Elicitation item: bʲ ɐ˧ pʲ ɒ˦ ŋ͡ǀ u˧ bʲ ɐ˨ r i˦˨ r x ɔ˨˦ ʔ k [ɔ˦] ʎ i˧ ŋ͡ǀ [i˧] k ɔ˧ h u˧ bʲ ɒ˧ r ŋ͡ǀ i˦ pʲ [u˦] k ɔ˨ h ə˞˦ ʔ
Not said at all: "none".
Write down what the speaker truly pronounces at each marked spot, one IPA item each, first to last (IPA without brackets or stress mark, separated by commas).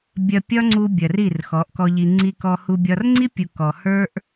ɔ˧, i˧, u˨